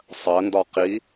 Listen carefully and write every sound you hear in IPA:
sˤɜndɒ qi

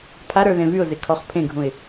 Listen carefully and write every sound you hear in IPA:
pʰaɾə˞ ðẽvyʊ̯ze kʰɔχpʰẽɡʱũɪ̯

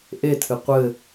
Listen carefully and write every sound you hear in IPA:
ʔetʰɨ qʷɘ

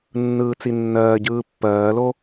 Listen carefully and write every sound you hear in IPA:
nːɯːt͡sinːɜːɟɯː pːɜːlo

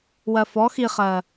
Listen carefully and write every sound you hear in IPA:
wɜfɔ xiχɜ

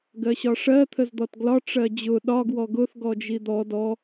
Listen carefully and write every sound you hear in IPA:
ɡɜɕɒʂɜ t̪ʰəzd̪ɔtɡlɒ ʈ͡ʂɜd͡ʑʊ ɗɒ ɡwɔɡʊθ ɡɔd͡ʒid̪ɔ dɔ

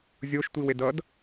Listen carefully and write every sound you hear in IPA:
zʲoʃ tʷiwedʌd

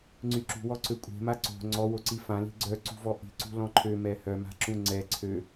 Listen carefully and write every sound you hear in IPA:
ŋ͡ǀyǁṳwɔ ǀøkʷʼe̤ma ǀo̤ ŋ͡ǀɔwoǀi fãli̤ ɡ͡ǀœǀṳvɔ ʔi̤ǀṳ lɔ̃ǃʰø mɛhœma̤ ǁũŋ͡ǀɛ ǀʰø

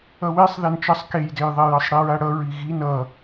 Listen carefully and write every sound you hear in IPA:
ʌwesˤ ðɛnt͡ʃʌsˤ kejdejðˤe jʌsˤɽiɹaɽʌ ɹiɣin ʌ

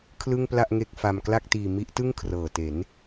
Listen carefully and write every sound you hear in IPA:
kʰlɯ˥˩ŋpla˥˩ʔŋe˥˩k̚fa˧m kla˥˩k̚tiː˧ mi˦˥ʔtɯ˥˩ŋ kʰrɤː˨˩te˩˦n

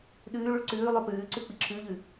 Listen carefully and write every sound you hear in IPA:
ɗʉːɭuɭ ǀʉː lˠopʉːǀʉ k͡piǁʰʉʎʉ

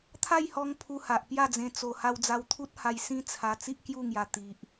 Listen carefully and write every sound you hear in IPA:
t̪ʰa˥˧jhɔ˧ŋ pʰu˧ha˨ʔpja˥˧d͡zẽ˧ t͡so˨˩ ha˧wd͡za˧wt̪ʰu˦t̚ha˧j sĩ˦t͡sʰa˧ t͡si˦ʔkju˥˧ŋja˨˩ t̪i˨ʔ

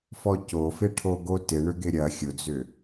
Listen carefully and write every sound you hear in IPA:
fɔcofɪ ʈʰoɡotɪ ɳʏɡɪɾʲɐ xʲʊd͡zʏ

